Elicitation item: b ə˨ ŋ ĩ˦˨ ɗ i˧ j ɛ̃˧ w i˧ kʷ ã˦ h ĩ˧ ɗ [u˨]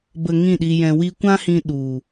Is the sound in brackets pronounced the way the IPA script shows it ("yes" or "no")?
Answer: yes